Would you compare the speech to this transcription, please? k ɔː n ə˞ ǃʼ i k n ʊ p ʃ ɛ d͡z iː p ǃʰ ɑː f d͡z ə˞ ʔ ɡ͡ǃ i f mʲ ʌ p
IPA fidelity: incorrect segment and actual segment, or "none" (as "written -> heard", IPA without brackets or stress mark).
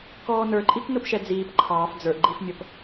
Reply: none